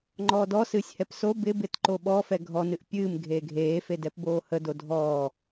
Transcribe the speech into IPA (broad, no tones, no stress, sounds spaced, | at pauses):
ŋ͡ǃ ɔː d ɔ s ɨː sʲ h ɛ p s o b ɪ b ɪ t ǃ o ɓ ɔ f ɛ ɡʱ ɔ n ɨ ʔ pʲ ɨː m ɡʱ eː ɡʱ eː f e d ɛ p b oː h ə d o dʱ ɔː